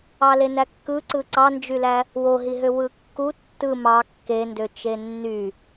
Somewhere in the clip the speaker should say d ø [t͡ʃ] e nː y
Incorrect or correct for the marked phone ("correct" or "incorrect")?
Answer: correct